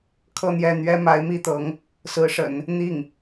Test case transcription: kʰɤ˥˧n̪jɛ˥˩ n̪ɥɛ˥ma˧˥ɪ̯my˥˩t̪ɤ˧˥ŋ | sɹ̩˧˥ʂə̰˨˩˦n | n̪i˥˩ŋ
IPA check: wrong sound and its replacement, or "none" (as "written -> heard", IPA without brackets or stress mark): y˥˩ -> i˥˩